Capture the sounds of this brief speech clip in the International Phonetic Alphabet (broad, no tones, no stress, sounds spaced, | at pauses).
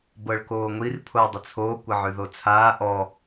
b ɤ ɭ k oː ŋʷ i r pʰ o ə̯ dˤ ə t͡sʰ oː kʷ ə ʕ ʉ ð o t͡sʰ aː ʔ ɔ